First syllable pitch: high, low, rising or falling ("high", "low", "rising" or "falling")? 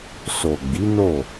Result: low